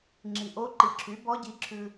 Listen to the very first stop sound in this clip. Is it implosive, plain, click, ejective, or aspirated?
click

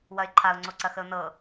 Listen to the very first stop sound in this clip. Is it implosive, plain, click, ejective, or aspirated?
click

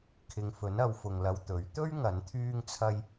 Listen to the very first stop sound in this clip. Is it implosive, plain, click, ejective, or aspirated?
aspirated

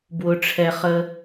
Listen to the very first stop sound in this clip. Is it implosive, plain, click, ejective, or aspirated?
plain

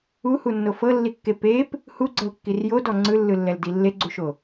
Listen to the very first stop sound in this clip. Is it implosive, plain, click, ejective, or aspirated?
plain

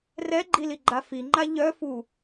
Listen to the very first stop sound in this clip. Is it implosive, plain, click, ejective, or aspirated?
click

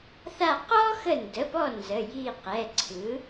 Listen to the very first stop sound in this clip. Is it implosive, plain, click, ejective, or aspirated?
plain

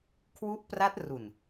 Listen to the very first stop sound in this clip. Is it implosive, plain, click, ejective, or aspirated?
aspirated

